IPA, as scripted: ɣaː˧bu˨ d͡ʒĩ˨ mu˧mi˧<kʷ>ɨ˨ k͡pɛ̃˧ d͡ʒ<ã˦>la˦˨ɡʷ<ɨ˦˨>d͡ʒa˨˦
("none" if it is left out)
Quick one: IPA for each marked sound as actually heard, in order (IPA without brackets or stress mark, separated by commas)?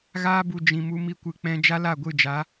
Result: kʷ, a˦, ɨ˦˨